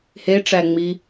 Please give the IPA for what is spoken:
h e ʈ͡ʂ æ ŋ͡m i

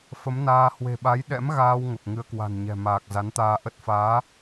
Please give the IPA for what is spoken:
f ə˨˦ m n aː˧ h w e̤˨˩ ɓ a˨˦ j ɗ ɛ̰˧˥ m ɣ aː˧ w ŋ ə˨˩ p̚ ŋ ɨ˧ ə̯ k w a̤˨˩ n ɲ ɛ̤˨˩ m aː˨˩ k̚ z a˨˦ n t̪ aː˧ ʔ ə˦˥ t̚ f aː˨˦

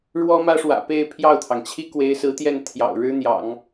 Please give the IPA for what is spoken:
ɻ w ɔ˥ m ä˥ ʂ w ä̰˨˩ p e˥˧ ɪ̯ pʰ j ɑ˥˩ ʊ̯ t̪ʰ ɑ˩ ŋ t͡ɕʰ i˥ k w e˧˥ ɪ̯ s ɹ̩˧˥ t̪ j ɛ˥˩ n t̪ʰ j ɑ̰˨˩ ʊ̯ ɻ ɻ̩˥ n̪ j ɑ̰˨˩˦ ŋ

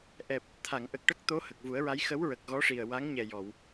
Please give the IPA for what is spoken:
ʔ ɛ˨˩ p̚ | t̪ʰ a˨˩˨ ŋ ʔ ə˨˩ k̚ ʈ ə˦˥ k̚ t̪ o˧˥ h ə˨˩ k̚ v u˨˩˦ ə̯ ɹ a˧˥ j x ə˧˥ w ɹ ə˨˩ k̚ ɣ ɔ˧˥ ʂ i˨˩ ə̯ w a˧˥ ŋ ɲ ɛ˨˩ j ɔ˨˩˨ w

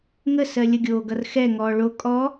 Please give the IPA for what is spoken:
ŋ ə s ɜ lʲ ə ɡʲ oː ɡ ʌ r x ɛ ŋ ɔː ɭ o kʼ ɔ

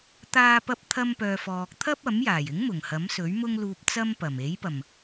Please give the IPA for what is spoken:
t̪ aː˧ p ɐ˧ p̚ t̪ʰ ɐ˧ m p œː˨ f ɔː˨ k̚ t̪ʰ ɐ˥ p̚ ɐ˨˥ m j aː˨˩ j ɪ˨˥ ŋ m ʊ˨˩ ŋ h ɐ˨˥ m s ɵ˨˥ ɥ m ʊ˥ ŋ l uː˧ p̚ t͡s ɐ˥ m p ɐ˨˩ m e˨˥ j p ɐ˨˩ m

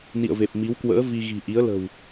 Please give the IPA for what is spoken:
n ḭ˧˨ ə̯ v e˨˩ p̚ m i˨˦ w k w ə̰ː˧˥ v i˧ ɣ i̤˨˩ ʔ i˨˦ ə̯ l ə̤˨˩ w

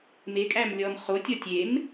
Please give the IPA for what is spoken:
m e kʼ æ m lʲ ɔ m χ o tʲ ɔ tʲ e m

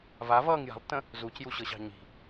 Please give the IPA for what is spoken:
v a v ʌː ŋ j a̤ lˠ tː ə̃ | z u c j u ɕ ɤ ɕ ɑ̤ ɲ i̤

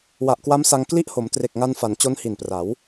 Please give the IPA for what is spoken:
w a˨˩ ʔ k w a˦˥ m s a˧ ŋ k l i˥˩ ʔ h o˩˦ m t r e˨˩ k̚ ŋ a˧ n f a˩˦ n t͡ɕ o˦˥ n h i˨˩ n p r a˩˦ w

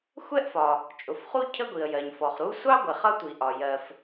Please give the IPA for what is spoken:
xʷ ɛ˥ ʔ f ɒ˩ | t͡ʃʼ ʊ˩ f χ u˥ cʰ ə˥ ɡʷ i˩ ə̯ j ɜ˩ ɲ f ɔ˩ χ ɾ u˥ sʷ ɑ˥ ɡʷ ɪ˩ χ ʌ˥ tʷ i˩ ʔ ɒ˩ j ɜ˩ f

